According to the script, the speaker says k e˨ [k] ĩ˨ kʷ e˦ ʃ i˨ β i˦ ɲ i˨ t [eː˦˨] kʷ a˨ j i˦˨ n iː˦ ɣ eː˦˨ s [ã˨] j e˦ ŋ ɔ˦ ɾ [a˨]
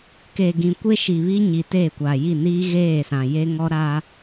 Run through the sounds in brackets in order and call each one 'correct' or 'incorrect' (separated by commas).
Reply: incorrect, correct, correct, incorrect